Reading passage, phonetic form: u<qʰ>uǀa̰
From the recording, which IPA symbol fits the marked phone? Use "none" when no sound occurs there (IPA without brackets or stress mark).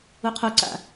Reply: qʰ